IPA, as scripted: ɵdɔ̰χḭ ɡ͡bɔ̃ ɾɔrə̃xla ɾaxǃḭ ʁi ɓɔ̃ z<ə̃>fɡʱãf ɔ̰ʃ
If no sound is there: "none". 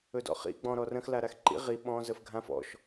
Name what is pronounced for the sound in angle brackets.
ə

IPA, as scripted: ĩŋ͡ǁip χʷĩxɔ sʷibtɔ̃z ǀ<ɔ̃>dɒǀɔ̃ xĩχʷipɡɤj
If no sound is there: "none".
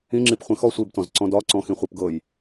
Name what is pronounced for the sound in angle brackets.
ɔ̃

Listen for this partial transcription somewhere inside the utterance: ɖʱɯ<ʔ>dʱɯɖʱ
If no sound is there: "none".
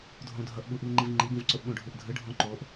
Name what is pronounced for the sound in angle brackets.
ʔ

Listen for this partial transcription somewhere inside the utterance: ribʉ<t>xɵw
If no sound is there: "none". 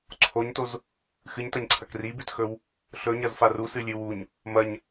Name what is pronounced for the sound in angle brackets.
t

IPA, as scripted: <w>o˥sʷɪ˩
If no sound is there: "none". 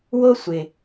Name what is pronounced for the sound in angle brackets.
w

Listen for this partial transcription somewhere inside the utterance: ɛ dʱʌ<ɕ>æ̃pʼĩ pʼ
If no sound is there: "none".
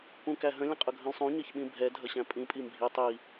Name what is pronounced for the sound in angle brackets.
ɕ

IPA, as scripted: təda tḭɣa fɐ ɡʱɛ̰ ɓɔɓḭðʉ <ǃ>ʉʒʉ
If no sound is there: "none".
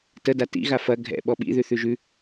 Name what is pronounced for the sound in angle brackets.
θ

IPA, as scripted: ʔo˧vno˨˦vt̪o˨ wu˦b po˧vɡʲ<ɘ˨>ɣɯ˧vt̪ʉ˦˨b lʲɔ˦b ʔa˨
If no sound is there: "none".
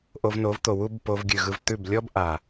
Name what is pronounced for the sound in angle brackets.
ʉ˨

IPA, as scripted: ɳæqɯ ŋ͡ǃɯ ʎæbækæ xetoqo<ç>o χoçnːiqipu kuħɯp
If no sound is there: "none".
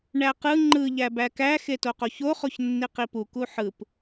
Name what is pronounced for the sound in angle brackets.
ç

